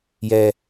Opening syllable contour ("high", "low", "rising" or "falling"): low